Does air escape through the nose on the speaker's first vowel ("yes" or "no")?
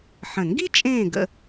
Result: yes